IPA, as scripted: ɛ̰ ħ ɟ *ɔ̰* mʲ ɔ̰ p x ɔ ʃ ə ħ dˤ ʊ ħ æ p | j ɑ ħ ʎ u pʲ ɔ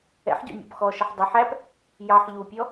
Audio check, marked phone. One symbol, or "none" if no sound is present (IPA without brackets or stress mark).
ɔ̰